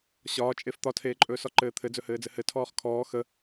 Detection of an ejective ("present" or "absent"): present